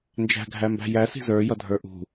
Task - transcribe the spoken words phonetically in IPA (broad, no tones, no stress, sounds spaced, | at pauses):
n d͡ʒ æ̤ ɡʱ æ m b æ̤ j æ s i̤ z ə˞ j ʌ dʱ ə˞ ʔ ṳ